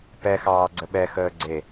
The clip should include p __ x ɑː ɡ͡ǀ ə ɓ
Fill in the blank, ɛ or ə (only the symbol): ɛ